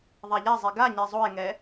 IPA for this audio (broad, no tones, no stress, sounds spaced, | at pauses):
ðˤ a ʎ a zˤ e ɡ a ɲ ɛ zˤ o e̯ ŋ ɛ